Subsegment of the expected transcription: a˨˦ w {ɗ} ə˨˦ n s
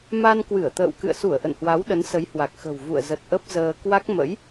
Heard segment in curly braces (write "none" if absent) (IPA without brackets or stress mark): ɗ